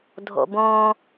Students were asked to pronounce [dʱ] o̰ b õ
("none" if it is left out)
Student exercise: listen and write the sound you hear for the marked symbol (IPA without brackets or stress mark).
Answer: dʱ